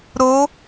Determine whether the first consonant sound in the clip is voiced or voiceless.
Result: voiced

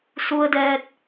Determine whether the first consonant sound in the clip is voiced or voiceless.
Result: voiceless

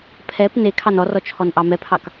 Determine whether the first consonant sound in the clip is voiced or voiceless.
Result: voiceless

